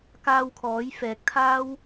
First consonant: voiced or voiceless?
voiceless